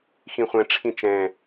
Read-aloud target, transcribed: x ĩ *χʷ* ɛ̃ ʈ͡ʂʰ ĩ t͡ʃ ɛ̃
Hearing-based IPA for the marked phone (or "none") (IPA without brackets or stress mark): χʷ